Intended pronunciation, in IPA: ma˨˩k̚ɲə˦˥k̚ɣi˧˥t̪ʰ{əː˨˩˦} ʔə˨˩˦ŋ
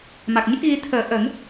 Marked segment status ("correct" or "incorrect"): correct